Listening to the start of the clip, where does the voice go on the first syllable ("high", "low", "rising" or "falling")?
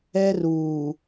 high